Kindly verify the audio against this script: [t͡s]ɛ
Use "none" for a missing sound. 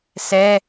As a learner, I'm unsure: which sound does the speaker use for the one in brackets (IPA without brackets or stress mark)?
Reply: s